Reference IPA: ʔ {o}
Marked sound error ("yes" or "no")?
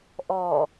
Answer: yes